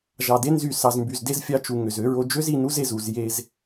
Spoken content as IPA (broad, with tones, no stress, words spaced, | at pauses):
ʒɑ˨de˦ nzy˦˨ sɑ˨zmby˨zde˦z fʲɑ˦ t͡ʃu˨ ŋø˨zø˦ɹo˦ d͡ʒø˦zi˨ nu˦ze˨zu˦˨z je˦z